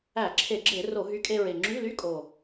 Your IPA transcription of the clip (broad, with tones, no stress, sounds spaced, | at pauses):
æ˧˩˧ ǁʰ e˧˩˧ ɡ͡ǁ e˧˩˧ r o˧˩˧ ɦ y˨˥ kʼ e˧ ɹ e˨˩ ŋ͡ǁ y˧˥˧ l y˧˥˧ kʼ o˨˩